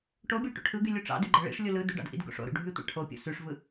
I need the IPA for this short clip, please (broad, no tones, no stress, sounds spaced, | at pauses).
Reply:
ʈ o bʲ o ʈ o̰ ʈʰ ɯ ɡ y lʲ u ʈ͡ʂ ɑ̰ d y ɡ͡ǃ æ ɭ ḭ ʂ lʲ u l ɯ d y ɖ ɑ̰ d ʔ ḭ d ɡ o̰ ʂ o̰ ɾ ṵ ɖʱ y tʷ ɑ̰ ʈʰ o pʲ o̰ s y ʂ v ɯ